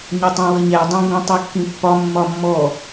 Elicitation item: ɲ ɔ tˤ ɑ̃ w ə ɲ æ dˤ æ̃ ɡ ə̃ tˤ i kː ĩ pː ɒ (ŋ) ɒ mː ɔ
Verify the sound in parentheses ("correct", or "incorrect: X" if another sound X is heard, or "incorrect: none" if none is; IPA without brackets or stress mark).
incorrect: mː